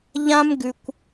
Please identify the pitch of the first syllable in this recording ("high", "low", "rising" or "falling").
high